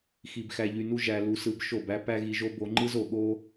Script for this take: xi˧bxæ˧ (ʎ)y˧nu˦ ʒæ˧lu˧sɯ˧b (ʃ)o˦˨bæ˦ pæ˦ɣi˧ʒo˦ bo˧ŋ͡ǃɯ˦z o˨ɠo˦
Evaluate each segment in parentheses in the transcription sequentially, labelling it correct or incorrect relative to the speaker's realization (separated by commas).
correct, correct